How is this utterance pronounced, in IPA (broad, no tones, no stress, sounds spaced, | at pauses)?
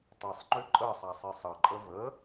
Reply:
tˤ ʌ sˤ ŋ͡ǃ ʏ ǃʼ ə sˤ a sˤ i sˤ ʌ ǃʼ ə v ə